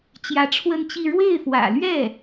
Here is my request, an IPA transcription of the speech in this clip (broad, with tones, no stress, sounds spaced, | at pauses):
t͡ɕ j ä˧˥ ʈ͡ʂʰ w ə˥˧ n t͡ɕ i˥˧ ɻ w e˥˩ ɪ̯ f w ä̰˨˩ l ɥ ɛ˥˩